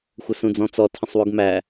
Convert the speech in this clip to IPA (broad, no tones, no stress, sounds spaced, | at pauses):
xʷ ə s ũ d͡z ɔ̃ t͡s ɔ tʰ ə̃ sˤ w u ɡ m æ